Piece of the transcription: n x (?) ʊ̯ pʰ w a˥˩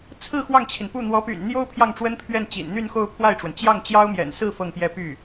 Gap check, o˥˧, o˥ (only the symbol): o˥˧